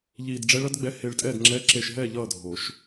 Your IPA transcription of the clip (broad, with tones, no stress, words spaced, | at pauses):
ʎiː˧dɖ͡ʐɛ˦˥ɭʌ˦˥dɡ͡bɛ˧˥˧ he˧ɭtʼɛ˥˨d ŋ͡ǁɛ˧˥˧ǁe˧ʃɦɛː˥˨ ʎʌː˥˨dʱo˨˩˦ʃ